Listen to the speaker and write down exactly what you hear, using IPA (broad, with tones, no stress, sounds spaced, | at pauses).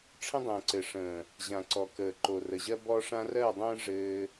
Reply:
ʈ͡ʂʰ ə̃˦ dˤ ə̃ː˨ ǀ ɘ˨ ʂ ə̃ː˨ | ʑ ã˨ ǀ ɔ˨ k əː˨ ǃ o˨ r ə˨ ʑ ɜ˦ b ɔ˦ ʂ ã˦ r ɜ˦˨ dˤ ə̃ː˦ ʐ ɘː˧